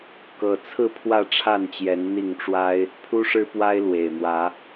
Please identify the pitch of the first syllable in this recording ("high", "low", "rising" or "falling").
low